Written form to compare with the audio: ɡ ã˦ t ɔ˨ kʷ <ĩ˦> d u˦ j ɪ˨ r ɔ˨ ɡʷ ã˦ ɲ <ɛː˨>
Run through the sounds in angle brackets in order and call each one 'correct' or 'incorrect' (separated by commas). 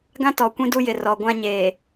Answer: correct, incorrect